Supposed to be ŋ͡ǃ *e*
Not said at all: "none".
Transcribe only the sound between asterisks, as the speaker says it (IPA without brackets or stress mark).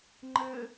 ɘ